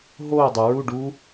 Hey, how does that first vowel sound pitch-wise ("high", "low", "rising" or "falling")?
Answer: falling